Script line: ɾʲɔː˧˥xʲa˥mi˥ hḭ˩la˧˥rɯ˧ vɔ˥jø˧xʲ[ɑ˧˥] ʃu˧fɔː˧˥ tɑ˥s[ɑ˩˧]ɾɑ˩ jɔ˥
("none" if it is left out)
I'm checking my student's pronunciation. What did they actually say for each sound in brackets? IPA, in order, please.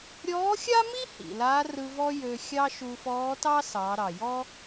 ɑ˥, ɑ˩˧

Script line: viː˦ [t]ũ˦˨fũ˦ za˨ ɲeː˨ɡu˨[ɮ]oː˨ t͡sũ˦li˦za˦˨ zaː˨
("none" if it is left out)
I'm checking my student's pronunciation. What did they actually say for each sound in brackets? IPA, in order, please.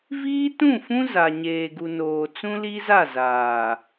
t, n

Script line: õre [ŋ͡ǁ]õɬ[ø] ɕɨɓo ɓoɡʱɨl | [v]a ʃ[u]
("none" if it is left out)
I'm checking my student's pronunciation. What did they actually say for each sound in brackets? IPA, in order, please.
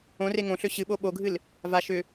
ŋ, ø, v, ʏ

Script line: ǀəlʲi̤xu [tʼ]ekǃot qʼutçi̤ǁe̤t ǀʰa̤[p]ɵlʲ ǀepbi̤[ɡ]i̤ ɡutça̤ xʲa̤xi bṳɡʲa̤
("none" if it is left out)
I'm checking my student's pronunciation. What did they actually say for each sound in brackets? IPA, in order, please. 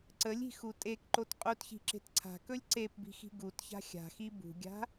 tʼ, k, x

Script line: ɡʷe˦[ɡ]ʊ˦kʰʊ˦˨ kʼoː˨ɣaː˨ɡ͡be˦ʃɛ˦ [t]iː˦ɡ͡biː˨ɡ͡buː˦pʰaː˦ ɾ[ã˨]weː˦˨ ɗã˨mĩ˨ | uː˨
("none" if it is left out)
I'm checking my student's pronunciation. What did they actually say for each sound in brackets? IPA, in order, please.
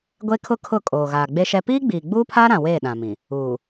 kʰ, p, ã˨

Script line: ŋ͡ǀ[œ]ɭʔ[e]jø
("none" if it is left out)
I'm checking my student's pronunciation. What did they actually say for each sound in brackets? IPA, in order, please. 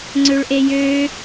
ø, e

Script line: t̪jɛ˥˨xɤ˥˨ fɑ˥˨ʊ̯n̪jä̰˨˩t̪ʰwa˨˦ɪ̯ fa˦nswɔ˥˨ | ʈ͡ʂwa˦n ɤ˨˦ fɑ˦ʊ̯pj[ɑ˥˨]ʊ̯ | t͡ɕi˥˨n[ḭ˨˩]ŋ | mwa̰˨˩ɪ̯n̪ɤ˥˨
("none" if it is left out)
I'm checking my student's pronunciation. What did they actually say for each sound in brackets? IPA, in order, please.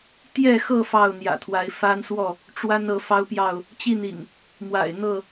ɑ˥˨, ḭ˨˩

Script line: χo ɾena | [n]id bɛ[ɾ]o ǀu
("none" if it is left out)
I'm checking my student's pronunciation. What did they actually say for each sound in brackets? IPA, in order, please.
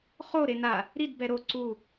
ɾ, ɾ

